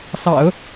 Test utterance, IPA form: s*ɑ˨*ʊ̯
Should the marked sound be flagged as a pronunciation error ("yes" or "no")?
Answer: yes